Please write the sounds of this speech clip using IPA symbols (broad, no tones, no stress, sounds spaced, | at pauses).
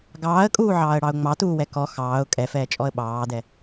ɡ ɑː ə̯ kʼ uː ʕ ɑː ə̯ ɽ ɑ ʊ̯ ŋ͡m ɑ t uː w ɛ k ɔ x ɑː ʊ̯ kʼ ɛ f ɛː t͡ʃʼ ɔ ə̯ ɓ ɑː d ɛ